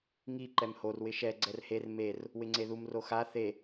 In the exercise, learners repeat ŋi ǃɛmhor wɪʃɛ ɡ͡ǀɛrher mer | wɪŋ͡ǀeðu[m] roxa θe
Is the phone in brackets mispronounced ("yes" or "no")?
no